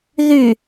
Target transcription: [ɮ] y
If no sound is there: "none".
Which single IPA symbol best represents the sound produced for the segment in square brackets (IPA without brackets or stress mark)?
ð